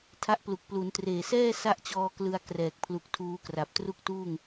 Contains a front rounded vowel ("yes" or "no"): no